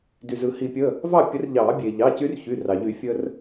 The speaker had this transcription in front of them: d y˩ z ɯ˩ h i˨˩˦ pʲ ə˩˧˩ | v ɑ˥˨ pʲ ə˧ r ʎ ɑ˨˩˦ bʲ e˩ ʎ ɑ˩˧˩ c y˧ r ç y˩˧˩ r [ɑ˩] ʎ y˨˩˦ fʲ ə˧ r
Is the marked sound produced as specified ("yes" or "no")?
yes